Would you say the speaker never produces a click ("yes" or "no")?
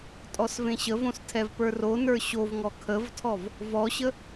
yes